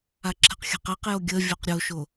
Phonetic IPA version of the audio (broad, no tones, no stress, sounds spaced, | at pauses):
a ǁʰ ə̤ q xʲ a̤ q ɛ q j o ɡʲ ə vʲ o q ɾʲ o ʃ o